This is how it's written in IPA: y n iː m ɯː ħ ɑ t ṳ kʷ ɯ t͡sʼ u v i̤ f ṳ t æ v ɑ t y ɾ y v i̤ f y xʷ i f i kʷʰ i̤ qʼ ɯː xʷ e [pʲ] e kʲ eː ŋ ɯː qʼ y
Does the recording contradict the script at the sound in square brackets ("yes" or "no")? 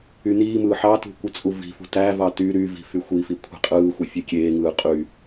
yes